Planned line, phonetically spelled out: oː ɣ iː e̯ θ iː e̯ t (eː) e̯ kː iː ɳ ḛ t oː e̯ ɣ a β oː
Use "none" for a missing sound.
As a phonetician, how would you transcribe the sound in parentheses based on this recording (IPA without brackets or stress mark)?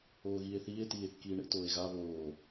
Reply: iː